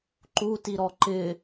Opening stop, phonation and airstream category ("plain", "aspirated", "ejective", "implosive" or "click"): click